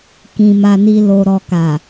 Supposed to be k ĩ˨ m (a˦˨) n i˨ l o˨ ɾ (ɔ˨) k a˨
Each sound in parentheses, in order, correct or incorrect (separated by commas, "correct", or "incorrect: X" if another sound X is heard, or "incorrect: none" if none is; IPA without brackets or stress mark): incorrect: a˨, correct